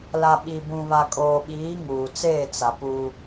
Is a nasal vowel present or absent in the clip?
present